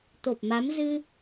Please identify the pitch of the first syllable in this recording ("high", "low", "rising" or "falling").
low